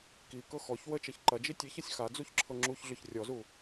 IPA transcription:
k i k ɤ x ɔ ç w ə t͡ʃ ɐ ç ǃ ɐ d͡ʒ i tʲ e ç ɐ sʲ x a d͡z u ç ǁʰ ɤ ŋ͡ǁ u ç ɮ ʏ ç rʲ ɔ z u

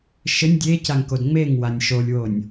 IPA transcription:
ʃ ɘ nʲ dʲ e c a ŋ k o d ŋ͡m e ŋ w a nʲ ʃ o lʲ w o nʲ

